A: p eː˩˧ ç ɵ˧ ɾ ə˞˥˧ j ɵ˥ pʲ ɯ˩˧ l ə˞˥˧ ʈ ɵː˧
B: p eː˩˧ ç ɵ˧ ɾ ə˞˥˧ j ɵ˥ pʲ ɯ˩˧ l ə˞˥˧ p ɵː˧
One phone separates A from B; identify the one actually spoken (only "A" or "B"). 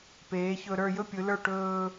A